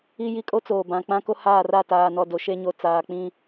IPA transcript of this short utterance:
i˦ji˦ kʼo˦t͡soː˨bã˨k͡pã˦ ko˦haː˦˨ra˦˨ taː˨nɔ˨do˨ ʃe˦ɲo˨ t͡saː˨ k͡pĩ˦

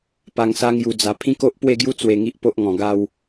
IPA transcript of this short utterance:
pa˧ŋsa˦ ŋju˧d͡za˧ pʰĩ˦ko˦ʔpwe˥˧ɡju˦ t͡swe˧ŋi˦ʔpo˦ʔŋɔ̃˨˩ ɡa˥˧w

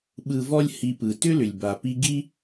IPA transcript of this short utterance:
ɓɯ˨vɔ˦lʲ hi˨pɯ˩tʏ˥lʏ˩lʲ ba˩pi˦ ɡi˥

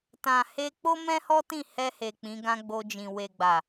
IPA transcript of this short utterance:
tã˨he˧ k͡po˦mɛ̃˦hɔ˦tĩ˦˨ hɛ˧he˨ k͡pĩ˨˦ɡã˦ɡ͡bo˧d͡ʒĩ˨ we˨ɡ͡ba˨

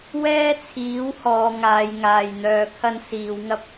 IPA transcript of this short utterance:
wɛː˥t͡sʰiː˨˥whɔː˨˧ ŋaː˨˧jŋaː˨jn̪œː˧ kʰɐ˥n siː˨˧wŋɐ˥p̚

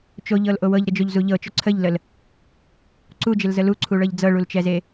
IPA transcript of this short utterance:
t͡ʃoʎɤlʔo wɤʎɾəd͡ʒoʎzu ʎɤt͡ʃo ǀʰəʎləl | ǀud͡ʒɪlzə luǀʰuɭɤʎ d͡zɤɭult͡ʃɛze

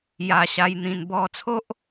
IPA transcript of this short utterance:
ja˧ɕa˧j n̪ĩ˧n bɔ˧t͡sʰo˦ʔ

